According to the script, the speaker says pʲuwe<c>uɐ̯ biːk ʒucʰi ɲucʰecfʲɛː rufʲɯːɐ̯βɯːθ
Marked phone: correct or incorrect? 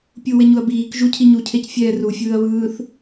incorrect: ɲ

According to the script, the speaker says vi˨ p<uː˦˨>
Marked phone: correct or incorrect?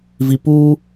incorrect: uː˦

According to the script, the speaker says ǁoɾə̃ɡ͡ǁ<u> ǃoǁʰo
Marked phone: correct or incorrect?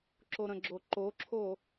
incorrect: o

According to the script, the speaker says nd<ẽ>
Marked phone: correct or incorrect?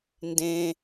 correct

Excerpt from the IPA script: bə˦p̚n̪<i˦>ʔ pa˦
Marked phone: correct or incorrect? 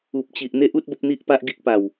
correct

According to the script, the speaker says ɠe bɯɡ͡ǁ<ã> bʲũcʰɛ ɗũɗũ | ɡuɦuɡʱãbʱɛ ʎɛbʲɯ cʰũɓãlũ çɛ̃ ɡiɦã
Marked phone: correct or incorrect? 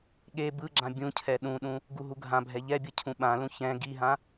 correct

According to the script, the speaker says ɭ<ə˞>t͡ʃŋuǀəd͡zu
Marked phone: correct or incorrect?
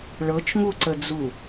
incorrect: ɤ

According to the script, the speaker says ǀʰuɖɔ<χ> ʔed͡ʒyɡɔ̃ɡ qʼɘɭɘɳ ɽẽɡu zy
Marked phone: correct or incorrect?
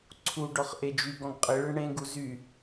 correct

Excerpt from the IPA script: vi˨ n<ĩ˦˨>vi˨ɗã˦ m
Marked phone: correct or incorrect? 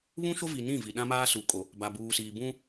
correct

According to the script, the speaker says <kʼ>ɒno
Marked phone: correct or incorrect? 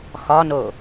incorrect: x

